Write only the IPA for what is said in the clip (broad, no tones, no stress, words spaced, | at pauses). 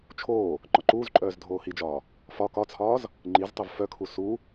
t͡ʃʰoː | ŋ͡ǃɒǃuːzǃʼœːz dʱoːhid͡ʒɒː | fɒ kɒt͡sʰɒːz | ŋ͡ǃiztˤuv fœkʰu su